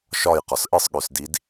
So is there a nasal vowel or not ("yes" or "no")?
no